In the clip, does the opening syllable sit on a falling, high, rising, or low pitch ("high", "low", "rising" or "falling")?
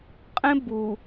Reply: high